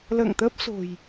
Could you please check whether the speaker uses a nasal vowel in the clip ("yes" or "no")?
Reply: no